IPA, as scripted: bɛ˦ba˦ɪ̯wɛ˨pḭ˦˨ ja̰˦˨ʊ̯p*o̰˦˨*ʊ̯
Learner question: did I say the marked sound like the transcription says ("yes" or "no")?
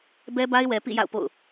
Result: yes